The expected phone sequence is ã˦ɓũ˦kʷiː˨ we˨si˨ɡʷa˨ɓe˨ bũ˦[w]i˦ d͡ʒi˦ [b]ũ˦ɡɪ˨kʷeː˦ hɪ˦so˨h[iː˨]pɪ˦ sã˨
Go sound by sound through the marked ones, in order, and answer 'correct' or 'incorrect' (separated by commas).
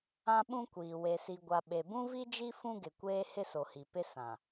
incorrect, incorrect, incorrect